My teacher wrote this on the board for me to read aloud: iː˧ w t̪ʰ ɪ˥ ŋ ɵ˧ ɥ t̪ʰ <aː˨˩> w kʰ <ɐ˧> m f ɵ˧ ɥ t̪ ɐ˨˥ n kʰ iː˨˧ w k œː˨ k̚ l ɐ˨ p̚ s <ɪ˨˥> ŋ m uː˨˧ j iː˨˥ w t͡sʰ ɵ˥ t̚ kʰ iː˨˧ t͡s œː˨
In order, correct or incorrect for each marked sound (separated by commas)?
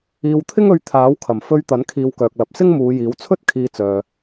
incorrect, incorrect, incorrect